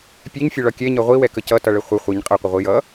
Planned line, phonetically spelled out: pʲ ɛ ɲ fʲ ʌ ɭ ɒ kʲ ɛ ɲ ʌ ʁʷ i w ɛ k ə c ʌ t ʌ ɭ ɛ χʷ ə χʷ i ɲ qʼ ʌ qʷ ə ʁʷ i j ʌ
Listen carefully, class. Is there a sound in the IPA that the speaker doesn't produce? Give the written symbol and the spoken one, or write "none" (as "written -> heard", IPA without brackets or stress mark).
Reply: none